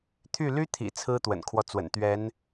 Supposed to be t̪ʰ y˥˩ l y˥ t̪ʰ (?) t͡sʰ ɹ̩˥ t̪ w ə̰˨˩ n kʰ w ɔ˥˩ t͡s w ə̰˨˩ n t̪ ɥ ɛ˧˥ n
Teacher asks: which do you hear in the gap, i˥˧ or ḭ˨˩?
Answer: ḭ˨˩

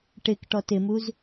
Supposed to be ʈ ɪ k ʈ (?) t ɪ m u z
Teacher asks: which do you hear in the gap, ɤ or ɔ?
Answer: ɔ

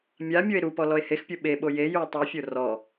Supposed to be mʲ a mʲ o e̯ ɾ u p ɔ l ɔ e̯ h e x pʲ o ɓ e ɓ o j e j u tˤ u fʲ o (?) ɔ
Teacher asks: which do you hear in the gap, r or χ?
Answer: r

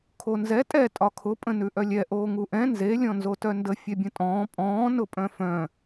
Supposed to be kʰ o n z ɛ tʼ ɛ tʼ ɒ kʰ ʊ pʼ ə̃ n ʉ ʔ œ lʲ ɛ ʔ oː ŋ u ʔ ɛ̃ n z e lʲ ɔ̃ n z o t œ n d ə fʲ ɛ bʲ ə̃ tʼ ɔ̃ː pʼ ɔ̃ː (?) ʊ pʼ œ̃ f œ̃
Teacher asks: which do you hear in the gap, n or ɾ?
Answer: n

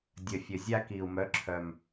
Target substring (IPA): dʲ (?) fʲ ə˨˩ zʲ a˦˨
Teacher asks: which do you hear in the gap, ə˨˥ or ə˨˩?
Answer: ə˨˩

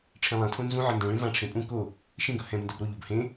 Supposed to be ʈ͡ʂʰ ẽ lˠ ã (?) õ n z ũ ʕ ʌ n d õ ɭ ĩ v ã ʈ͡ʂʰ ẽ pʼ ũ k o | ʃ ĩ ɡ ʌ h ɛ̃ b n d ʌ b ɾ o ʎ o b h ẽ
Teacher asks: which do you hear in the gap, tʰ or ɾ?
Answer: tʰ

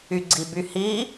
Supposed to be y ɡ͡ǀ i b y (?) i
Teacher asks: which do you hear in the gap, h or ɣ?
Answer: h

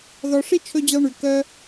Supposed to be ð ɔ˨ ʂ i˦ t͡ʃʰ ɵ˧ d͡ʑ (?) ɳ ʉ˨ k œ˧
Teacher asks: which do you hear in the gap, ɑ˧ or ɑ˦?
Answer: ɑ˧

